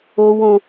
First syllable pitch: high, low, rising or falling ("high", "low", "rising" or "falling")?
high